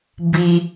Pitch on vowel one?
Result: high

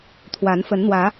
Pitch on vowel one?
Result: rising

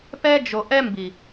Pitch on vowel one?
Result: high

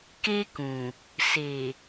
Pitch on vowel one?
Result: high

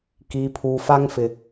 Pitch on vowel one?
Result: low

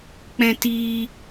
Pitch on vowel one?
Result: high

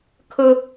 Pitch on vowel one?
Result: high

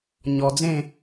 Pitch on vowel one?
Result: low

